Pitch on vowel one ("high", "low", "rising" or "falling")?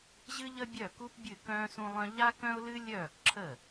high